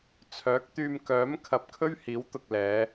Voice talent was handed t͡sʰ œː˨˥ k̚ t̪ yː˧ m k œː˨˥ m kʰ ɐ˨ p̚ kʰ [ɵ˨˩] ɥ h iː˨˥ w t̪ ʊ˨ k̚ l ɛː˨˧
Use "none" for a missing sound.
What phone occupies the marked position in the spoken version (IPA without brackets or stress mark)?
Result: ɵ˥